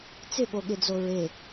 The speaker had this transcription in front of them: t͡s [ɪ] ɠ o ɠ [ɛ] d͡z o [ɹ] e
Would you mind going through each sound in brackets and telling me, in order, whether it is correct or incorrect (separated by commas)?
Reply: correct, incorrect, correct